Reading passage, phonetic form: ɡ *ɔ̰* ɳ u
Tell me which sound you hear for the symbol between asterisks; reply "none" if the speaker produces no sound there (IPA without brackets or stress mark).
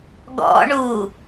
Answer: ɔ̰